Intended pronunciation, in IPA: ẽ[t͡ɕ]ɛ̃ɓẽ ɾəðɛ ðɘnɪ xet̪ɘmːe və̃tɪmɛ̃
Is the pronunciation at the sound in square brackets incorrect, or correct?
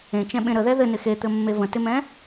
incorrect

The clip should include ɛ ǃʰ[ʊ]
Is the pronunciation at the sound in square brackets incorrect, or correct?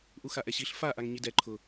correct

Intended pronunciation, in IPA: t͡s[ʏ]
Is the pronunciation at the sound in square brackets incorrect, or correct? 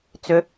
correct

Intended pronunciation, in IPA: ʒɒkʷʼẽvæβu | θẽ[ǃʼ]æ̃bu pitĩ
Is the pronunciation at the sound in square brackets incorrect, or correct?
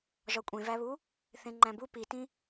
incorrect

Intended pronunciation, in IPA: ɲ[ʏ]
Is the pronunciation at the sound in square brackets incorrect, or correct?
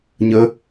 incorrect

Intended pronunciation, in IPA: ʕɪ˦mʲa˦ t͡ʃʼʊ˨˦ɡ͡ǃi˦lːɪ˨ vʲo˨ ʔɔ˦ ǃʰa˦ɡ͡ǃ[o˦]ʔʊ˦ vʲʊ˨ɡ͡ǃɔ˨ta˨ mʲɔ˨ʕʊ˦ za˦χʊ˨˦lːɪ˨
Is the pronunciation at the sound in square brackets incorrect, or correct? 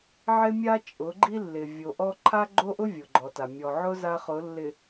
correct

